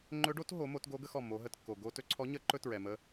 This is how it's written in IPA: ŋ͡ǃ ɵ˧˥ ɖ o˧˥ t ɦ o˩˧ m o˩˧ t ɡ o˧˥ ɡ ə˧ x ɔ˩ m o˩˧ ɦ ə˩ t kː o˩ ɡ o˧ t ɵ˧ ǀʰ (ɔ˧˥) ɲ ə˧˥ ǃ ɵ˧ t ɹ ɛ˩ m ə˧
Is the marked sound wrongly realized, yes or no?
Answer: no